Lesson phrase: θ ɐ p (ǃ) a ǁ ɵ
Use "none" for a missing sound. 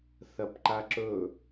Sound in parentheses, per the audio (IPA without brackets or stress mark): ǃ